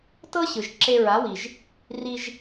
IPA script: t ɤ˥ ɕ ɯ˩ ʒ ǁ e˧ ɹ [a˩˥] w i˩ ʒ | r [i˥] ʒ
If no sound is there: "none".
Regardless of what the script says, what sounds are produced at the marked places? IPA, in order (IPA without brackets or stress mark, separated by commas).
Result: a˩˥, i˧